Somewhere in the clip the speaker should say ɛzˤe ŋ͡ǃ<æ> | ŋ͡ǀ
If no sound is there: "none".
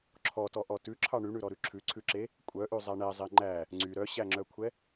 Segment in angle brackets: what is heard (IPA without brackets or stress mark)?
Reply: æ